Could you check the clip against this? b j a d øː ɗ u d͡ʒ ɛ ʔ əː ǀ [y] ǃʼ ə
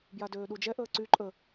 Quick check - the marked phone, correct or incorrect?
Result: correct